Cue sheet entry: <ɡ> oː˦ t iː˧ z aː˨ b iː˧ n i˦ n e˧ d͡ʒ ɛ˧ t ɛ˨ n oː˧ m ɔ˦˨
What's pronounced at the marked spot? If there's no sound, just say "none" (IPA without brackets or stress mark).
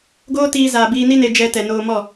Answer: ɡ